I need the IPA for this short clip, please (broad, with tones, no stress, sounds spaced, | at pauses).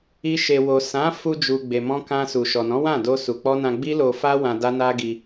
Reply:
i˧ ʃ e˨ w o˨ s ã˨˦ f u˧ d͡ʒ u˨ ɡ͡b e˨ m ɔ̃˧ k ã˧ s u˨ ʃ ɔ˨ n ɔ̃˨˦ w ã˦˨ d o˧ s u˨ k͡p ɔ˧ n ã˧ ɡ͡b i˦ l o˧ f a˦ w ã˧ d a˦ n a˦ ɡ i˧